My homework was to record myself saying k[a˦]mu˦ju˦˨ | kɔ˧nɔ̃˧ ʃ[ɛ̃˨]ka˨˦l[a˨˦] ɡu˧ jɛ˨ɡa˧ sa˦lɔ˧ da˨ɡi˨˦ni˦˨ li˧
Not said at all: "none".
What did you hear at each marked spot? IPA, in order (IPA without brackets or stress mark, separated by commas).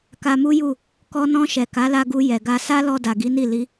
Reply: a˧, ɛ˨, a˧